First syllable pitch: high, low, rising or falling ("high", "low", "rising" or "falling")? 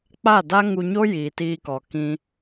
falling